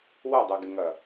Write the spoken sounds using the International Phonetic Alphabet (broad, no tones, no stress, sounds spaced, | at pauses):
w ɐ dˤ ɛ ɡ ɪ ŋ ɐ